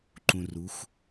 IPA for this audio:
ǃ ũ˧ r u˨˦ xʷ

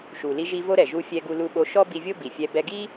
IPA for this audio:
ʃ u˩ l i˧ ʒ i˧ v o˥ ɾ ɛ˩ ʒ u˧ fʲ ɛ˧ ɡ u˧ l u˧ ɓ o˧ ʃ ɔ˥ b i˧ vʲ o˥ b i˩ fʲ ɛ˧ b ɛ˧ ɡ i˥

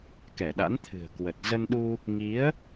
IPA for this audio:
k ɛ˧˩ ɗ a̰˧˥ n t̪ʰ ɨ̤˨˩ ə̯ k w ə˨˩ t̚ z ə˧ n ɗ u˧ | ŋ i˨˦ ə̯

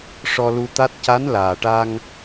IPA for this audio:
ʂ ɔ˧ l u˧ t̪ a˦˥ t̚ c a˧˥ n l aː˨˩ ʈ a˧ ŋ

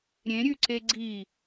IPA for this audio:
ɾʲ ẽ ɾʲ ʉ ǀ e ɡ͡ǀ i

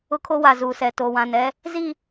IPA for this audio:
ʊ˦ kʰ o˦ w a˨ z uː˨ s ɛ˨ t o˨ w ã˨ n ɛ˦ | z i˦˨

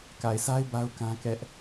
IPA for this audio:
k a˨ ɪ̯ s a˦ ɪ̯ b a˦ ʊ̯ k ã˦ k ɛ˦ ʔ

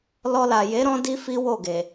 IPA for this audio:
l ɔ˧ l a˨ j e˨˦ ɾ ɔ̃˦ d i˦ f i˦ w o˦˨ ɡ e˨

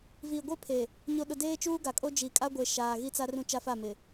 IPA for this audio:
v iː˨ ɡʷ e˦ pʰ e˨ | ɲ o˨ ɗ ʊ˨ d eː˦ t͡ʃ uː˦ ɡ a˨ kʼ o˦ d͡ʒ i˨ kʼ a˦ ɡʷ e˨ ʃ aː˨ ɣ i˦ t͡s a˦ r ũ˦ t͡ʃ a˦ f a˦˨ m ɪ˨

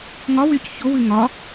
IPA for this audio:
ŋ ɒ w y c ç o w ʉ ŋ ɒ

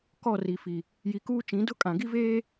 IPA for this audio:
k ɔ˦˨ r i˨ f i˨ | j i˨ k uː˦ t͡ʃ ĩ˨˦ d ʊ˦ kʼ ã˨ ɡ i˦ v eː˦

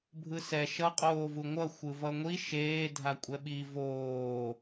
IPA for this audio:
bʱ ɯ s ɛ ʃ ʌ qʼ oː v u ŋʷ ʌ xʷ ɯ v ʌ ŋʷ i ʃ eː dʱ a kʷʼ ɛ ɓ i v oː

